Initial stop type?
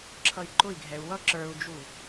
click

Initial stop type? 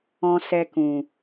plain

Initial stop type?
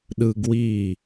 implosive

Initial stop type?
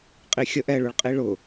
ejective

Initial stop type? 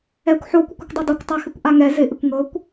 plain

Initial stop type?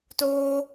plain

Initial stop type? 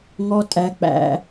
ejective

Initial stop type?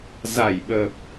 implosive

